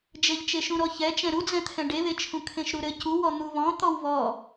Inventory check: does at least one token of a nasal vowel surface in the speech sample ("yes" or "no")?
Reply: yes